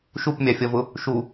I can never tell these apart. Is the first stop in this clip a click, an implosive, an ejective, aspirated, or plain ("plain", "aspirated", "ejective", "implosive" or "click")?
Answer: plain